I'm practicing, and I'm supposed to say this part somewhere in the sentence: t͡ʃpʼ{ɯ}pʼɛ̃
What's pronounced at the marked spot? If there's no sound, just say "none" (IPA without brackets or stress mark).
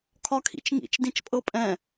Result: ɤ